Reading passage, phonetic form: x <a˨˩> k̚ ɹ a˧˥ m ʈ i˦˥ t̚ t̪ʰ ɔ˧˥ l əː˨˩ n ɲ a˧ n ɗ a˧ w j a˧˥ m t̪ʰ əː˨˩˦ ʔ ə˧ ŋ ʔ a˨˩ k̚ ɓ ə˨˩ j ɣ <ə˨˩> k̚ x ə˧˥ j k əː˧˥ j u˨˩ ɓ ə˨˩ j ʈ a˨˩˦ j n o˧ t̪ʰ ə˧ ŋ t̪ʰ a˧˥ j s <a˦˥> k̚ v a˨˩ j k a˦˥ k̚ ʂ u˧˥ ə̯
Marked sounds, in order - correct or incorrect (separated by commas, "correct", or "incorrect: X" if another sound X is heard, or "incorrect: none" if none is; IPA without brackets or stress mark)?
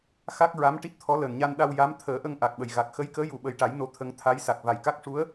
incorrect: a˦˥, incorrect: a˨˩, incorrect: a˨˩